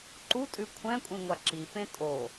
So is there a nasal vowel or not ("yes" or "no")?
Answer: yes